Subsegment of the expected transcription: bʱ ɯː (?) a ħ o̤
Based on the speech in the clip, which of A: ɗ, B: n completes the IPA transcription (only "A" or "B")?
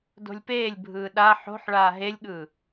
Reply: A